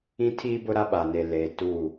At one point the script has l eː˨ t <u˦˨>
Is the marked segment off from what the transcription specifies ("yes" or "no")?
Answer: no